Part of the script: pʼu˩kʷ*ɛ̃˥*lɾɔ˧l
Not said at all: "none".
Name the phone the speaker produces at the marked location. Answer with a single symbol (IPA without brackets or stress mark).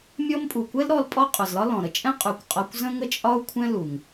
ɛ˥